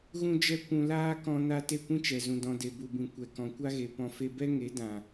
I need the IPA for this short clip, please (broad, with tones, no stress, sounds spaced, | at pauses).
ɣ ũ˦ d͡ʒ ɛ˦ kʷ ũ˧ l aː˦ k ɔ̃˦ n a˦ t e˦˨ kʷ ĩ˦ t͡ʃ ɛ˨ z ũ˨ d ɔ̃˨ d e˨ b u˨ b ĩ˨ kʷ ɛ˨ k ɔ̃˨ kʷ a˦ ɣ e˨ p ɔ̃˨ f e˧ b ɛ˦ ŋ e˨˦ d ã˨